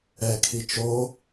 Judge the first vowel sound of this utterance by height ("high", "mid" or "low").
mid